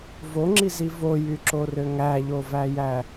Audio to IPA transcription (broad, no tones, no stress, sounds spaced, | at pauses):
v o ŋ͡ǁ i z i v o j y ǁ o r ø ŋ æ ʎ o v æ j æ